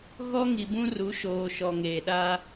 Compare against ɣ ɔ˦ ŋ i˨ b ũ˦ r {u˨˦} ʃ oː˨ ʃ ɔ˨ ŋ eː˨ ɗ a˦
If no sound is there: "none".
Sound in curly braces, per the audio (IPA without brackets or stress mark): u˨˦